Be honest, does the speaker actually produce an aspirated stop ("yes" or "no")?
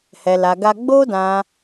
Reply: no